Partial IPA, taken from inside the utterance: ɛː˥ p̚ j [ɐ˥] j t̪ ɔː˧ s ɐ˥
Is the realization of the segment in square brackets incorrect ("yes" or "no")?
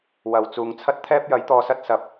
yes